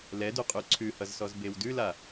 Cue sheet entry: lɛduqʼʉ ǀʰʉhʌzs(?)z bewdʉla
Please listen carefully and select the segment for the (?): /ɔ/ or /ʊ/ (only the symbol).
ɔ